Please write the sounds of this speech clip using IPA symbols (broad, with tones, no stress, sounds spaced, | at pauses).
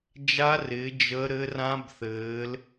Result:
d͡ʒ a˦˥ r ɪː˨˦ d͡ʒ ə˦˥ ɾ ɘ˦˥ r ã˦˥ b θ ɘː˨˦ l